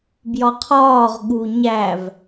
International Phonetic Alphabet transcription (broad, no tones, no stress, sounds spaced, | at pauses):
b j ɒ qʰ ɒː ʁ ɠ u ɲ æ v